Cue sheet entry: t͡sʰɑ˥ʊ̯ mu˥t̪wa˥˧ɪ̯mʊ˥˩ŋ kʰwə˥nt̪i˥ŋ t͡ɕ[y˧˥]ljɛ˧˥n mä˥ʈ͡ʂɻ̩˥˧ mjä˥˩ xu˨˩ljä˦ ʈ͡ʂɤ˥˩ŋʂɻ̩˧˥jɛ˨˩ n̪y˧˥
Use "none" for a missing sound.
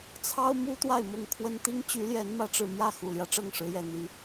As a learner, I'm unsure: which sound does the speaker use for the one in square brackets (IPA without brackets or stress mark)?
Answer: y˧˥